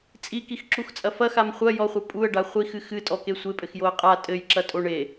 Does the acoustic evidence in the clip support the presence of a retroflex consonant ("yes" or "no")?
yes